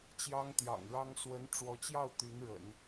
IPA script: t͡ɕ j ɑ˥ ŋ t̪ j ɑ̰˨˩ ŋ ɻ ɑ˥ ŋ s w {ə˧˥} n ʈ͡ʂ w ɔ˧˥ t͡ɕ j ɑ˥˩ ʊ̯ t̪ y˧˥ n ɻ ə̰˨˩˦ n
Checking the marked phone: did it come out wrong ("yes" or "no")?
no